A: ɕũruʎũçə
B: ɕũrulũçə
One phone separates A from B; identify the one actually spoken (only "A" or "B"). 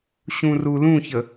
B